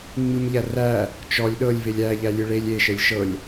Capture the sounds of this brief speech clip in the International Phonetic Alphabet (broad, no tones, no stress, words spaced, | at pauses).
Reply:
ŋ͡mɨmʎæræ | t͡ʃɔlʲ ɗɤlʲ velʲæ ʎælʲɨɭelʲ eʃɛlʲ ʃɤlʲ